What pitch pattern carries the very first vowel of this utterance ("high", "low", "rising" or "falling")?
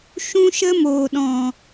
high